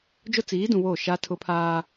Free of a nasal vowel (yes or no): no